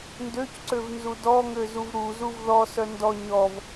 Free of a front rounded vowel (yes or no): no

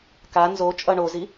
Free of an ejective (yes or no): no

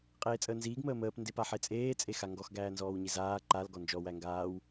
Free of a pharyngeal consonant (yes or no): no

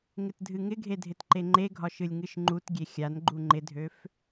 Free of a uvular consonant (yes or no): yes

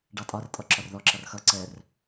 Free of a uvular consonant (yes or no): yes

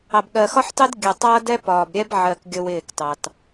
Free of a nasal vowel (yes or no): yes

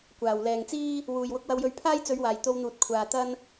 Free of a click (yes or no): yes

